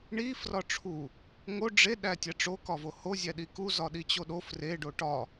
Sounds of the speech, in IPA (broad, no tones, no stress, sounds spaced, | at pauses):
ɳ i f r ɒ ʈ͡ʂʰ u | ŋ o ɖ͡ʐ e ɗ æ tʲ æ ʈ͡ʂ o k ɒ v o h o zʲ æ ɗ i k u z ɒ ɗ i t͡ɕ o ɗ o f r e ɖ o ʈ ɒ